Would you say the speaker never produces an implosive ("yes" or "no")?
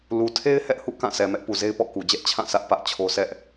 yes